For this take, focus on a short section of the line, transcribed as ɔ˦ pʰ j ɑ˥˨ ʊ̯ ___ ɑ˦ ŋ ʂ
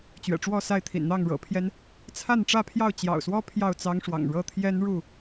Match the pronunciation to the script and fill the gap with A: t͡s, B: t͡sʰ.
A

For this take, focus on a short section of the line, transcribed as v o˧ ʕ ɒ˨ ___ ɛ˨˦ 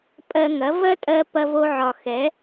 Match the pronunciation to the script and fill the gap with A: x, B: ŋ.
A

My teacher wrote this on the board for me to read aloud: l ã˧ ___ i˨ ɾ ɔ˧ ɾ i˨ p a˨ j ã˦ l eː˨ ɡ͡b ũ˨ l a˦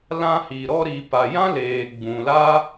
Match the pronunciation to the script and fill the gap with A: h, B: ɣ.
A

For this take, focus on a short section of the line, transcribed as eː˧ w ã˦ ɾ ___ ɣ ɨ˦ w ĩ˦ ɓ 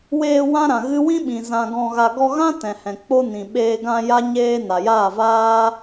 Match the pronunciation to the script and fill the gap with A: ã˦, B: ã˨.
B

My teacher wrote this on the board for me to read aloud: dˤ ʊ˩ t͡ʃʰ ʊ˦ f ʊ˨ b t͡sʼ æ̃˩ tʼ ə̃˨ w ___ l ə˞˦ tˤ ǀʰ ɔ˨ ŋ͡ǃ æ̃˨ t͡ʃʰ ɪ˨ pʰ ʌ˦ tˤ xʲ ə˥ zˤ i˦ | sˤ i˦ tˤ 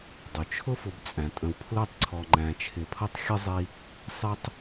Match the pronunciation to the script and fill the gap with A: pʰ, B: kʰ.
A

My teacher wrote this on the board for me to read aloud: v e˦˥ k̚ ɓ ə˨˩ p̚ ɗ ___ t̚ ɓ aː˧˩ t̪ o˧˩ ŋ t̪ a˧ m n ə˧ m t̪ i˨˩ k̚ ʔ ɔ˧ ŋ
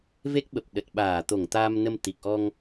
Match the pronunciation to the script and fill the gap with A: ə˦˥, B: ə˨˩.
B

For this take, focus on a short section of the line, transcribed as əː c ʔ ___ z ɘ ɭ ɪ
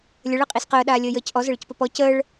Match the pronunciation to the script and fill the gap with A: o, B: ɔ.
B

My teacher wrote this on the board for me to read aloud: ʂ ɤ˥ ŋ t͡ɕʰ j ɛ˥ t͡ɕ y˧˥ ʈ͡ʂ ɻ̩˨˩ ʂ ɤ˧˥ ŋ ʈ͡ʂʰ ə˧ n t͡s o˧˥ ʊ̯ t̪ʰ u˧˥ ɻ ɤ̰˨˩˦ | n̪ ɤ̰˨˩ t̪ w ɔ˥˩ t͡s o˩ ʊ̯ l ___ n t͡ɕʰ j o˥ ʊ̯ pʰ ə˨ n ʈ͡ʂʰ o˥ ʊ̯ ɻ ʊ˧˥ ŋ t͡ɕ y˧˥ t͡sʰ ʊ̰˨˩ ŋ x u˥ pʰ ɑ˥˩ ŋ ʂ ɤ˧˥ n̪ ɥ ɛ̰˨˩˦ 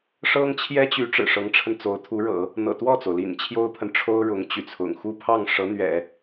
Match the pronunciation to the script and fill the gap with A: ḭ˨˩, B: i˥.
A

